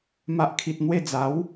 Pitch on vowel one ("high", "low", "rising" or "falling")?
low